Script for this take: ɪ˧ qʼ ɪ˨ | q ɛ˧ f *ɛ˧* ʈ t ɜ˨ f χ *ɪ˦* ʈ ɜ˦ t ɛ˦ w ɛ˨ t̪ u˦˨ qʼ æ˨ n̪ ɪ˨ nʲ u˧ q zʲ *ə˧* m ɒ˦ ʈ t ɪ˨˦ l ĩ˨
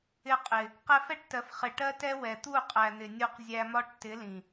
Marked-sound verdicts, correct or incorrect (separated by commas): incorrect, incorrect, incorrect